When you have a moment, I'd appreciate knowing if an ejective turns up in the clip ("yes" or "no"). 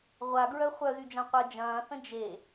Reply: no